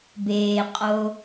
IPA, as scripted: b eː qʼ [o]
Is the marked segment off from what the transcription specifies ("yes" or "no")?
no